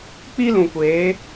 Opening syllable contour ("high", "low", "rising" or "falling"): high